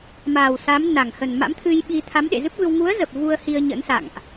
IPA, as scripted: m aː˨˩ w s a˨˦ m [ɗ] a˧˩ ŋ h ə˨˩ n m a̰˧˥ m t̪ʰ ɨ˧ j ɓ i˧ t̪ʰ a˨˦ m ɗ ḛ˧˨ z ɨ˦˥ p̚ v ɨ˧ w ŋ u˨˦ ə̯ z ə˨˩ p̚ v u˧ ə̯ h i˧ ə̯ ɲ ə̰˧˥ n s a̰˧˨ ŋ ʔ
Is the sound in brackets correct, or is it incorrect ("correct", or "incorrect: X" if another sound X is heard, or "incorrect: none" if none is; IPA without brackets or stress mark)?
incorrect: n